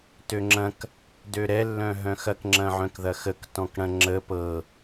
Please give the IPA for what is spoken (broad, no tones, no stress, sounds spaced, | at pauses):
t ø ŋ͡ǁ ɐ̃ k | d ø ɾ ɛ lː œ̃ ɦ œ̃ x ɐ k ŋ͡ǁ ɐ̃ ʕ œ̃ k ð ɐ x ə k t ɔ̃ k ɽ ɐ̃ ŋ͡ǁ ə p ɤ